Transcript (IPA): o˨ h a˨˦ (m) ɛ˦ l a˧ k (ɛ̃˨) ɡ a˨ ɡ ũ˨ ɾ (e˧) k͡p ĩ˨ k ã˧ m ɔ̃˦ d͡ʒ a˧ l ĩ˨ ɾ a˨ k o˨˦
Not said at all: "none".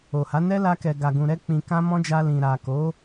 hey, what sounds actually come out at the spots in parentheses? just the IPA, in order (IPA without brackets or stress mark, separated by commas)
n, ɛ˨, ɛ˧